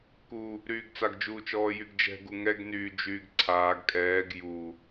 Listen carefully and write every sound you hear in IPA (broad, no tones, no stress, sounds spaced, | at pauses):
k u | ɾ yː ɡ t͡s a ɡ d͡ʒ uː t͡ʃ ɔː j y ɡ d͡ʒ ɛ̤ ɡ u ŋ ɛ ɡ n yː d͡ʒ yː ɡ ǀʰ aː ɡ kʼ ɛː ɡ j u